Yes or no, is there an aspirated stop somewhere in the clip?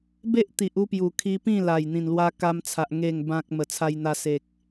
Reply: yes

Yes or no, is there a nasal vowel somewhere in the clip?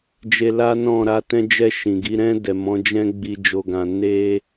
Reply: yes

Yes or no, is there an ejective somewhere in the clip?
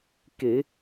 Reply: no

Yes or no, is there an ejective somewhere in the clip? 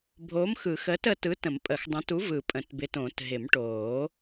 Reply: yes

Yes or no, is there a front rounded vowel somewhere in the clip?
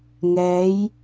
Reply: no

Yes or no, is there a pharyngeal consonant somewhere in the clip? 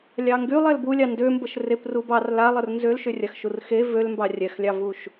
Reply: no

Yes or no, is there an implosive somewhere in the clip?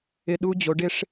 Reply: yes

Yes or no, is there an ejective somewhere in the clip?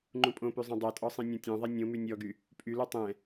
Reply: yes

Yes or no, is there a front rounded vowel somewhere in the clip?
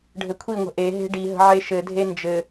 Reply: no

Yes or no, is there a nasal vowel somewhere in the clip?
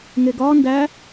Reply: no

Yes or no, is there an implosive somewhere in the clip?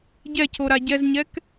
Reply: no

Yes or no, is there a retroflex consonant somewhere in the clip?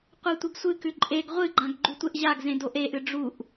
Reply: yes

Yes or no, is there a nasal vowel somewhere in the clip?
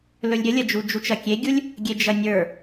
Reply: no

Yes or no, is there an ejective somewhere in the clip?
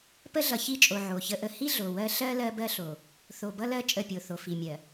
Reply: yes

